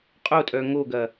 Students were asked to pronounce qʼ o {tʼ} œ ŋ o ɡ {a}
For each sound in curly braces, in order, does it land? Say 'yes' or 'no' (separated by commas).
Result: yes, no